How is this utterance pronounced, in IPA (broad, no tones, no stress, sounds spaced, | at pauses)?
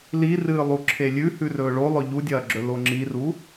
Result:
l i r ɨː lˠ u ǁʰ e lʲ ʉ h ʉ r ɵː ɭ o lˠ ɵ ʎ u dʲ ɐː ɡ͡ǁ ɵ l o ŋ͡ǁ i r u